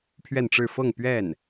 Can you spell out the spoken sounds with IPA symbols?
pʰɥɛ˥˧nʈ͡ʂɻ̩˥˧ fɤ˥˧ŋ pɥɛ˥˩n

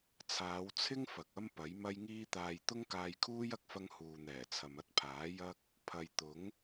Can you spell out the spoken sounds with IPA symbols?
t͡sʰaː˨˧wt͡sʰɪ˥ŋ fɐ˨k̚ɐ˥mpɐ˨˥j mɐ˥jŋiː˥ t̪aː˨j t̪ʊ˥ŋkaː˧jkʰuː˥j ɐ˥k̚fɐ˥ŋ huː˨n̪ɛː˨˩ t͡sʰɐ˨mɐ˥t̚pʰaː˨˥ jɐ˥k̚ | pʰɐ˨jt̪ʊ˨˥ŋ

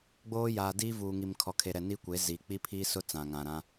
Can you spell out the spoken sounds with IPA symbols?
ɡ͡boː˦jaː˨diː˦vuː˨ ŋi˨mkʰɔ˨kʰe˨ɾɛ˨ ni˦kʷe˨˦zi˨ k͡pi˦pʰiː˦sʊ˦ t͡sã˨ŋã˨ɾã˦

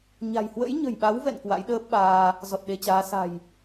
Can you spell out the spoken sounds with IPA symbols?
ɲa̤˨˩j hwə̰˧˥jɲə̤˨˩jɓa˨˦wvɛ̰˧˨n kwa̰˧˥jɗəː˦˥p̚ɓaː˧ | zɔ˨˩t̚ɗe˧t͡ɕaː˨˦ sa̤˨˩j

